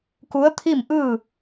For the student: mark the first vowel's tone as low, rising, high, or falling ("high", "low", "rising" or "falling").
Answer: rising